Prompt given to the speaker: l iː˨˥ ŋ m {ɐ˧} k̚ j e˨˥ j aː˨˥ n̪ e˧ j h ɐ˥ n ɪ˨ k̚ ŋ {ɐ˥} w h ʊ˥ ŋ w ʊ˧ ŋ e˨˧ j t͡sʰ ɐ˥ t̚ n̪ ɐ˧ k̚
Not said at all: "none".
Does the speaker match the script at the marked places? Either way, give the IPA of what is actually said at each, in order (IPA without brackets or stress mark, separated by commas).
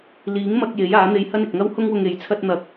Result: ɐ˧, ɐ˥